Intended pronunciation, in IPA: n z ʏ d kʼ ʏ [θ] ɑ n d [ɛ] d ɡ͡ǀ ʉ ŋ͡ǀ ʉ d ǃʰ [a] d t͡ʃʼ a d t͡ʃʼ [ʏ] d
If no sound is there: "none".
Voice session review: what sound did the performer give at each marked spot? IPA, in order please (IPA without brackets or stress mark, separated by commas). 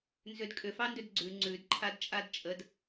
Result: f, ʏ, a, ə